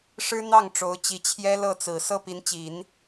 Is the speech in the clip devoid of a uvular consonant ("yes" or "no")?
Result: yes